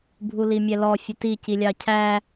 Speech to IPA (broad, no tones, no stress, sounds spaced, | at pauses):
bʱ u l i mʲ ɛ l ɔ fʲ ʊ t i c i lʲ ɑ cʰ æ